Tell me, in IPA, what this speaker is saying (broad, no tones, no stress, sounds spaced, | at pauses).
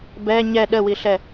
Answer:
b ɛ ɲ ɛ ɗ ə w i ɬ ɛ